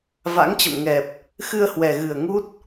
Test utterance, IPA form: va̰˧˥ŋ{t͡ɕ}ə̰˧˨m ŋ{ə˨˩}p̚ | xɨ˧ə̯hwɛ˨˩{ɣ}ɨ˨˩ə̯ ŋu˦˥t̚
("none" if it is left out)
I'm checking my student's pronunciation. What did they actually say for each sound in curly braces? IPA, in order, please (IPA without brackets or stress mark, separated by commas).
t͡ɕ, ɛ˨˩, ɣ